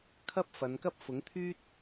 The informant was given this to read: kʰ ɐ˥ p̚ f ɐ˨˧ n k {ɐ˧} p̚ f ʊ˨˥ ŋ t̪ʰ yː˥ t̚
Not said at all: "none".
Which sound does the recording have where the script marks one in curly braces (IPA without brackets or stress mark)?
ɐ˥